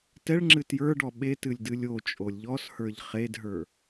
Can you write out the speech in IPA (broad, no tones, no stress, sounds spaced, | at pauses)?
t ɛ ɭ ŋ͡ǁ ɨ t j ə˞ ɖ ɔ ɓ e t ɨ lʲ d ɨ lʲ o t͡ʃʼ o lʲ ʎ ɔ s h ə˞ ʎ χ e d ɦ ə˞